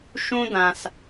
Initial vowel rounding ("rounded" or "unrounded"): rounded